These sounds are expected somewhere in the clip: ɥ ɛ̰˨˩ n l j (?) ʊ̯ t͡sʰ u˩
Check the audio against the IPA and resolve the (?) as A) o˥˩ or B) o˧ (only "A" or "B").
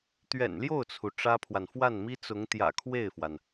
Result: A